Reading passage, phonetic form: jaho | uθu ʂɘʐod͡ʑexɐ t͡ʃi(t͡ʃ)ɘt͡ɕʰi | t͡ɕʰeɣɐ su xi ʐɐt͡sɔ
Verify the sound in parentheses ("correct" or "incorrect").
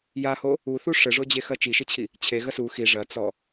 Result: incorrect